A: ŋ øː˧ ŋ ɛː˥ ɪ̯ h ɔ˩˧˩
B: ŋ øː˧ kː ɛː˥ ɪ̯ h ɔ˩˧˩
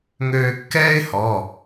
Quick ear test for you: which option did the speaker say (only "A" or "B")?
B